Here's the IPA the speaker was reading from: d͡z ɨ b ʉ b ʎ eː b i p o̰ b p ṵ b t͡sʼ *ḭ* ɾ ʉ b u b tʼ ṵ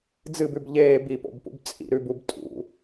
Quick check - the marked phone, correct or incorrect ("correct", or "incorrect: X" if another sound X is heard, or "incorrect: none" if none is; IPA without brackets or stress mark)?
correct